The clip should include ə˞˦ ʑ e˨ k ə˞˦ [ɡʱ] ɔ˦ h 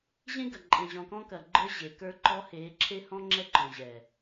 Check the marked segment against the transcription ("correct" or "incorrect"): incorrect